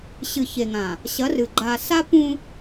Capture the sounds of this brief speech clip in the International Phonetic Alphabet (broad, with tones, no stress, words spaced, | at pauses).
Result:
ɕɨ˨çe˨ŋã˨ | ɕɐ˨˦rɨ˨ ɡ͡ǃa˨ sa˦pũ˦